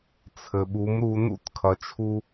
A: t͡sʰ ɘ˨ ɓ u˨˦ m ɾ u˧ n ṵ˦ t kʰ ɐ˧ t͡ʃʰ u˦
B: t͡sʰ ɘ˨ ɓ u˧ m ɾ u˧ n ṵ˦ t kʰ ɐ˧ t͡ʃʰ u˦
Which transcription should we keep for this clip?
A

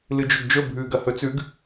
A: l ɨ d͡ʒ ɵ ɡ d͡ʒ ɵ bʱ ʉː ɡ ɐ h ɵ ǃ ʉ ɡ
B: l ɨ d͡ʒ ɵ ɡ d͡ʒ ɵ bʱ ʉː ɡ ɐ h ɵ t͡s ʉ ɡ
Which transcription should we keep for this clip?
B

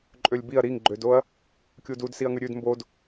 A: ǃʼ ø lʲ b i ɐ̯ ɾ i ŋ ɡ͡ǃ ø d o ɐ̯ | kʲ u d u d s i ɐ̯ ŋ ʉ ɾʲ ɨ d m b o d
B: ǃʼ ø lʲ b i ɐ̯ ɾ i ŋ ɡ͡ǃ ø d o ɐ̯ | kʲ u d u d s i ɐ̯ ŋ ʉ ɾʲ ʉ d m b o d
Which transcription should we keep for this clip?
B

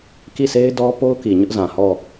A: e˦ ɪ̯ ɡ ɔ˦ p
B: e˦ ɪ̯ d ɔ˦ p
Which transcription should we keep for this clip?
B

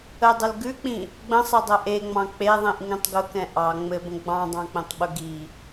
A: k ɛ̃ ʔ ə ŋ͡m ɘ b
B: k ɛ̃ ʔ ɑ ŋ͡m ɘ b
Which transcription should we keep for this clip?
B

